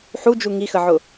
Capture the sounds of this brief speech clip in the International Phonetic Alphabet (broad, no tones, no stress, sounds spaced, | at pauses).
ħ u d͡ʒ u ŋ i x ə ʕ ʊ